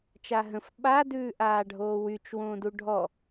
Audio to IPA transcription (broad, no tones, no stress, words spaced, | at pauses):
t͡ʃaɦə̃f ɓa dʉːʔaːɖʱoːwyt͡ʃ wõːduɖʱɔ